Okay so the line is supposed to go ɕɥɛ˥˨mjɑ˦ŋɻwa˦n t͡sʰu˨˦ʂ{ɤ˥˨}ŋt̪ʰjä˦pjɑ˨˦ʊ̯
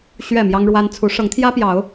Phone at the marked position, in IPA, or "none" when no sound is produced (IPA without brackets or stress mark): ɤ˨˦